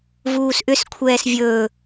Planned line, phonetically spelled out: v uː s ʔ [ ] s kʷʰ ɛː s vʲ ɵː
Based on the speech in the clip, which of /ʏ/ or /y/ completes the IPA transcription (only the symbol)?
ʏ